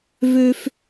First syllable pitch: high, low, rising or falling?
high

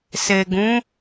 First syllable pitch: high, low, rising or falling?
low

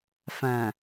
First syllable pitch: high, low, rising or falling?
low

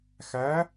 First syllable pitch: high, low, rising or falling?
rising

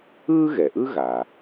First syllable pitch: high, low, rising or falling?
high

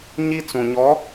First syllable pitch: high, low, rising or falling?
high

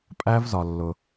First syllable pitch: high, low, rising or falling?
high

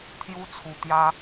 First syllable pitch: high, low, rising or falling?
high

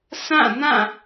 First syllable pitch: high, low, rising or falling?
falling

